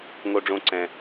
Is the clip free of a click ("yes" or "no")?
no